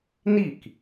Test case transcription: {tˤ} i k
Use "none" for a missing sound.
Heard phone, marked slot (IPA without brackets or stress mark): n